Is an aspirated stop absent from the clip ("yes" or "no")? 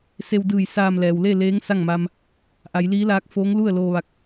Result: yes